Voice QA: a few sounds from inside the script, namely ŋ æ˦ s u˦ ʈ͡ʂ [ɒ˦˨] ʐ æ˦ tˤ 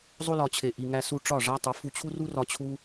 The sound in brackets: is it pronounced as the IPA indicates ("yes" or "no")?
yes